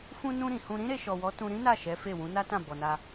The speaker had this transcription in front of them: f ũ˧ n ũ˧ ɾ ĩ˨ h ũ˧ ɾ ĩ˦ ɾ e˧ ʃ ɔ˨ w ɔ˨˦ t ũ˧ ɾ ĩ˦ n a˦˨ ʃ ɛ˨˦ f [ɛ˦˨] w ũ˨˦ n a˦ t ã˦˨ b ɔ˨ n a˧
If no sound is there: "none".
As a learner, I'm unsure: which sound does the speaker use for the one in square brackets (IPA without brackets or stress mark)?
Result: e˦˨